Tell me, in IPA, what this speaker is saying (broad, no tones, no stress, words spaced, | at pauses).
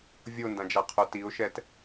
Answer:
vʲondãd͡ʒaqʰo tiʊ̯ʃɛt